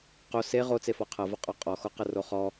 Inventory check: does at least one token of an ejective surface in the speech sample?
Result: yes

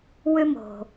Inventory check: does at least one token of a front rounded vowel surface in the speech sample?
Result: yes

